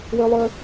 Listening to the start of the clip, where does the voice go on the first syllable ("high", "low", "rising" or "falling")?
high